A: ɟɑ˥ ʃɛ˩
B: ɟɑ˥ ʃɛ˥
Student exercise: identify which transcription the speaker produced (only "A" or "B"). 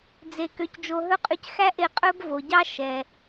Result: A